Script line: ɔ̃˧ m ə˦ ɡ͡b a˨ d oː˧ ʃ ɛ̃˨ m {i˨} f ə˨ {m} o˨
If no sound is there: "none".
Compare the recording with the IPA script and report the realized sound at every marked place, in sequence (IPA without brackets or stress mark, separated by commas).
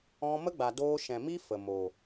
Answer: i˦, m